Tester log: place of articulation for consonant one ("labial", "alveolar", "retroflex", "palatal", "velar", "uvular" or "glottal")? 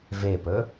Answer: labial